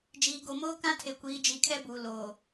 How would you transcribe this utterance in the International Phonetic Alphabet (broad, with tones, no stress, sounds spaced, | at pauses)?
d͡ʒ iː˨ ɡ o˨ m oː˦ k ã˦ tʰ e˨ kʷ iː˨˦ d͡ʒ i˨˦ kʰ ɛ˦ b uː˨ l oː˨